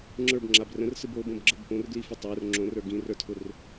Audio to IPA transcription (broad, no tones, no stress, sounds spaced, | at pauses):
ŋ͡ǁ ə˞ b ŋ͡ǁ a b r ə̃ r s ɯ b o b õ b ɡ͡ǁ ə b p õ r ɡ l i f ə tˤ ə˞ r ŋ͡ǁ õ r ə˞ ɡ ĩ r ə˞ tʰ ʊ r